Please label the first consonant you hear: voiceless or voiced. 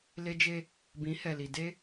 voiced